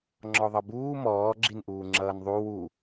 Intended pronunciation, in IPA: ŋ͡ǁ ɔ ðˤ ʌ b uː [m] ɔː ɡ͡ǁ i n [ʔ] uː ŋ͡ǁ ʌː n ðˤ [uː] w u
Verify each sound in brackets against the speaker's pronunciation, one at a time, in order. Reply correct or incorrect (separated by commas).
correct, correct, incorrect